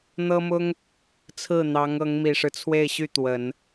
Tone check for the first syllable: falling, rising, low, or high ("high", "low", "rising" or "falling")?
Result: high